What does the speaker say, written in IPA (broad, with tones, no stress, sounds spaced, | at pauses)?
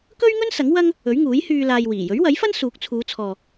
k ɵ˥ ɥ ŋ ɵ˥ n s ɐ˨˥ ŋ w ɐ˥ ŋ | ɵ˨˥ ɥ ŋ uː˨˥ j h yː˧ l aː˧ j w iː˨˩ j ɵ˨˥ ɥ w ɐ˨˥ j f ɐ˥ n s uː˨˥ k̚ t͡sʰ uː˨˧ t͡sʰ ɔː˨